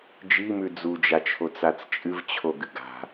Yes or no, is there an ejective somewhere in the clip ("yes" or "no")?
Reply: yes